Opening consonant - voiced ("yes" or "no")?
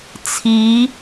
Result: no